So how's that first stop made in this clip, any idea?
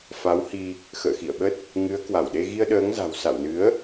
implosive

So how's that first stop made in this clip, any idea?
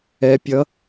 plain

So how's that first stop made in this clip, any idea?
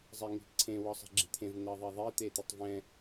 click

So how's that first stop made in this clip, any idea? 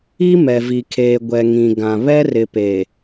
aspirated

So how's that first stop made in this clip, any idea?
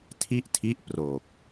aspirated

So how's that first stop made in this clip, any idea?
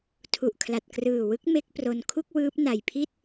aspirated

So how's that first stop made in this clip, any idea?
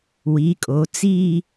ejective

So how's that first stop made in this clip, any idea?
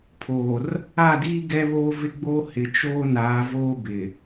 aspirated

